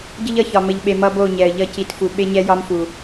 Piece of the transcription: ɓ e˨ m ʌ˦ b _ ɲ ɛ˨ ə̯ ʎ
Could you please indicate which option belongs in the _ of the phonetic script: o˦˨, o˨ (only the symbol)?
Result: o˦˨